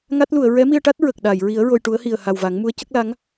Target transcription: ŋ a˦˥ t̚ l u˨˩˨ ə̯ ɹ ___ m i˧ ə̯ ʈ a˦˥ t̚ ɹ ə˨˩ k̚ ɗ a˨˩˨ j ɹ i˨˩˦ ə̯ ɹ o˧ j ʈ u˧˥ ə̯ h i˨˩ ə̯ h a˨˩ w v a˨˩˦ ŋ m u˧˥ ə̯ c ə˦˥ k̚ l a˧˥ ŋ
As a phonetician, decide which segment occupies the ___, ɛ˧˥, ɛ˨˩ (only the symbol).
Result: ɛ˧˥